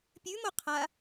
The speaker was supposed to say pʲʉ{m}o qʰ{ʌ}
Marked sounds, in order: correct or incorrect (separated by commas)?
correct, incorrect